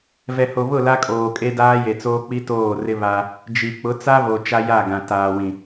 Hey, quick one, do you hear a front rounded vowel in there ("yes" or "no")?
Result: no